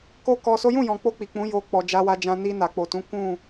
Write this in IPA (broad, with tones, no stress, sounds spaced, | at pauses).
k o˦ k ɔ˧ s o˦ j ũ˦˨ j ɔ̃˨ k͡p o˧ k͡p i˨ k͡p ũ˨˦ j o˧ k͡p ɔ˨ d͡ʒ a˧ w a˧ d͡ʒ ã˧ n i˧ n a˨ k͡p o˨ t ũ˨˦ k ũ˦˨